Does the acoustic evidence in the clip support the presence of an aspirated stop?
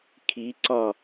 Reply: yes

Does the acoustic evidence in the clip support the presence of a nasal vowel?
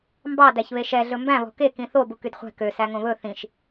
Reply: yes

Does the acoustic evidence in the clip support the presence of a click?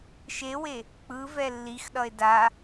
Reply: no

